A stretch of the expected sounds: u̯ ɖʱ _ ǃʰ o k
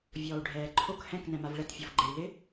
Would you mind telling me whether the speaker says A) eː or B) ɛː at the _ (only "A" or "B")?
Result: B